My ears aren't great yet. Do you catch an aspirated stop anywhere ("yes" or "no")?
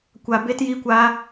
no